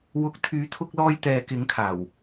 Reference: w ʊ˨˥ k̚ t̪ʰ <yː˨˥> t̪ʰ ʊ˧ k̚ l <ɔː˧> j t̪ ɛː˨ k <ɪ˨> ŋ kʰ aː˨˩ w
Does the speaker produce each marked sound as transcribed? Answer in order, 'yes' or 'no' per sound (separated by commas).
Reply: yes, yes, no